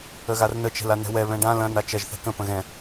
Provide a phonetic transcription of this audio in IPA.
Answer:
əɣarnə t͡ʃɛ̤lanɛ̤wɛ βɛ̃ɖã lɐ̃ nat͡ʃɐʒ θɛ̤kə̃ pə̃ɣɛ̃

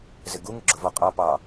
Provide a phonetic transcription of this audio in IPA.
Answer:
zɪɡuŋɪ ɡ͡ǁʊvɔqʼɑ pɑ

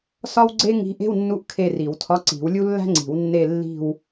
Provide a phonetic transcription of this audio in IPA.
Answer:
sɒ˥wɡ͡ǀe˥ŋi̤˧˥ʔ e̤˧˥˧wnːu˧˥ʔ kʰe˦˨ri˨˩˦wtʰɒ˧˥˧ ǀi̤˨˩˦wlʲu˥ lːæ̤˥ŋ͡ǀi̤˨˩˦w nːe˦˨lːi̤˦˨w

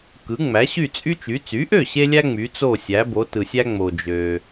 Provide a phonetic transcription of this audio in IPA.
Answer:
kɯ˩˥ŋ͡mæ˩˥ ɕy˥˩t͡sʼy˥t͡ʃy˩˥ t͡sy˩˥ʔø˥˩ɕe˧lʲæ˧ ŋ͡my˩˥t͡so˥˩sʲæ˩˥ bo˩˥tɯ˩sʲæ˥ŋ͡mo˩ d͡ʒø˩

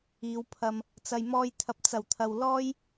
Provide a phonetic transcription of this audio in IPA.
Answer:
iː˨˧wpʰɐ˧m | t͡sɐ˨jmɔː˧jt̪ʰɐ˨p̚ t͡sɐ˨˩wt̪ʰɐ˨wlɔː˥j

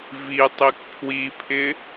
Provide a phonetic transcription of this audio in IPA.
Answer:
vitˤik pʰwipʰɪ

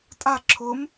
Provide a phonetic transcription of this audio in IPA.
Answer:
tʼa ǁʰʊm

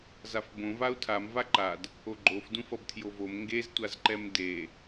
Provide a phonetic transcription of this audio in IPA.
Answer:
zafbõ vau̯tʰam vaǃad | oɡ͡ǃof dũfʌbtʰjovom ŋɡez tʷazǃɛmde

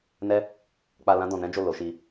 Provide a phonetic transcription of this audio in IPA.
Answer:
nɛ˦ | k͡pa˧ lã˦dɔ̃˧nɛ̃˦ d͡ʒo˦˨lo˨˦ʃi˧

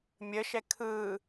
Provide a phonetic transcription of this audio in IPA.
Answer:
mʲəʃɛ kʰɯ

